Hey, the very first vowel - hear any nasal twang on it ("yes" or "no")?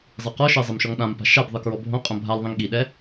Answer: no